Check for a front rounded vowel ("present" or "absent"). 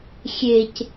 absent